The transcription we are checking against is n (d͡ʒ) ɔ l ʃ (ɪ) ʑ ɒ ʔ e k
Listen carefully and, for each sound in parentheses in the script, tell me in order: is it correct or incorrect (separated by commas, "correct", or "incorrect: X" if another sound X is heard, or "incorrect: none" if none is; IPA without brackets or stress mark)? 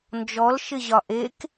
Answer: correct, correct